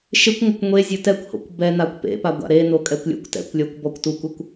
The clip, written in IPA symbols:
ʃɪkʷŋʷɪkʷ ŋʷezʲo tɛkʷho̰kʷ bɛ nakʷpḛpa ɡʷa̰ɾeno kʼɛkʷlʲo̰kʷtɛ̰kʷlʲɔkʷ bɔkʷtukʷɪkʷ

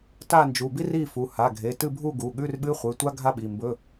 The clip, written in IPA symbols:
ta˥˨nd͡ʒu˩˧˩bi˥ ri˥˨fu˩˧˩ ha˩˧˩ɡʱe˩˧˩tɨ˥˨bʱu˥˨ ɡu˩˧˩ɠʉ˧˥˧rɓɨ˧˥˧χʷɨ˩˧˩ tʷa˥ ɡʱa˥ɓi˩˧˩mbɵ˧˥˧

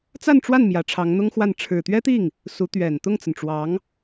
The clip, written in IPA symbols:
t͡sa˥˧nʈ͡ʂwa˥˩n mjä˧˥ʈ͡ʂʰɑ˧˥ŋn̪ʊ˥ŋxwa˥˩n ʈ͡ʂʰɻ̩˨˩t̪ɥɛ˥t̪i˥˩ŋ | su˧˥t̪ɥɛ˨˩n t̪ʊ˥˩ŋt͡sə˩nʈ͡ʂwɑ˧˥ŋ

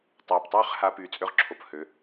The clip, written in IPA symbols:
tˤœː˨ptˤøː˦χ ha˧ pyː˨t͡sʼø˧ʁǁʰo˨p hø˨˦

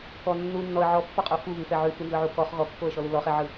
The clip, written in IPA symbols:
kɔ nːu nːɔə̯ ʕɔpːɔqʼo fuβʉfɛ ʕʉfɯnzɯʕu kɔχ ɣɔkːoə̯ʃɔlu lɔχɛʕɯ

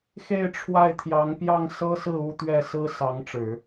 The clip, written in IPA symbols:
xe˥˧ɪ̯ʈ͡ʂʰwa˥˩ɪ̯t̪ʰjɑ˧˥ŋ pjɑ˥˩ŋsɤ˥sɹ̩˥˧ u˥˧ t̪ɥɛ˥˩sɹ̩˥ sɑ˧˥ŋʈ͡ʂɻ̩˨˩˦

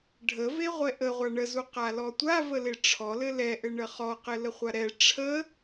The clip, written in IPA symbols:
ɖʱəve ʁʷɛʔə ʁʷaɳəzu qalɔtʷa vəleʈ͡ʂʰɔlɘ lɛʔɘɳə χɔqɘ ləχʷaɾɛ ʈ͡ʂʰə

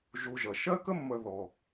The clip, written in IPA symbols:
ʒu˨ ʒʌ˩ ʃɜ˥kə˥mːə˨ ðɔ˩

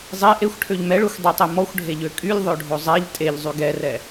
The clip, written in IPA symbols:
zˤe ʔexʷʈʰøʎ mɛɭøxʷ dˤɛtˤe mɔxʷɖʱeʎø kʼylʲðˤøɖʱo zˤɛʎ tʼeʎzˤy ɡɛrɛ

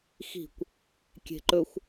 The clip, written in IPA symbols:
xi̤kʷ | kʲe̤ǃɵxʷ

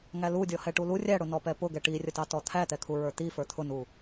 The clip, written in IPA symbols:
ŋælu dʲɔhɛʈulu rʲæɽʊnɔpɛ pʊɡɛ ʈirʲətɑtɔ t̪ʰæt̪ɛkʰu ɹə˞t̪i fə˞t̪ʰʊnu

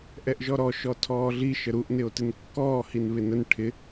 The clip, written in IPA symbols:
ʔɛʔʒɔɾɔ ʃɔtʰɔːɮi ʃəɾuʔ nɪo̯tɪnkːɔː hinβɪnən ʈʰɪ

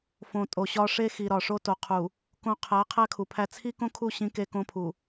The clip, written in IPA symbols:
fõ˨tʼo˨ɕɒ˦ ʂe˦xi˨ ɾɒ˨ʂo˦to˨ qʰu˨ | kõ˦ qʰæ˨˦ qʰæ˦kʰu˨pʰæ˦ t͡sʰi˦kõ˦kʰu˦˨ ɕĩ˦ke˦kõ˦pʰu˨

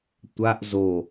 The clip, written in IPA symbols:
tʷaʔ zo

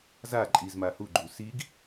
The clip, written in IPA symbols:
za ǃʼizma huɡ͡ǃu siɡ

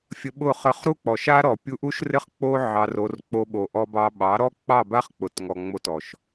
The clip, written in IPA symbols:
fʲə˧ɓʊ˦˨ χə˧χɾu˦k͡pɔ˨ʃa˦ ɾɔ˨pʲu˧ʔu˦ʃrɪ˦χ k͡po˦ ʕɑ˧ro˧r k͡po˧ɓo˨ ʔɔ˧bɑ˧ɓɑ˨˦ɾɔ˦ k͡pɑ˦˨ba˦χ k͡pʊ˨˦tŋɔ˨ŋ͡mo˧tɔ˨ʃ

